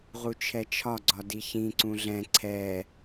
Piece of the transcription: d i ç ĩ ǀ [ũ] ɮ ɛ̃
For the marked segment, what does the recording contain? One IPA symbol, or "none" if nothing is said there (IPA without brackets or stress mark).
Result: ũ